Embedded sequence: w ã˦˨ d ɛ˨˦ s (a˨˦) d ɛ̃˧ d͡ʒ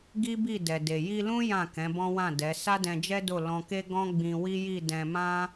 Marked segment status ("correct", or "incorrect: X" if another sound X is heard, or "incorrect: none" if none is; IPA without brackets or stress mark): incorrect: a˦